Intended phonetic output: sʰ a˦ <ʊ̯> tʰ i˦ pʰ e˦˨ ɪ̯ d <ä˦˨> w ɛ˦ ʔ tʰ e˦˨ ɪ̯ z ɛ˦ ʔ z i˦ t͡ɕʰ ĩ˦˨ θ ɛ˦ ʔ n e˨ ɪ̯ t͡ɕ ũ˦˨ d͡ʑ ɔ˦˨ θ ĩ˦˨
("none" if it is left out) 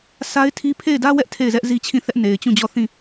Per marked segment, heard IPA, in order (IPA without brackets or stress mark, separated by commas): ɪ̯, ä˦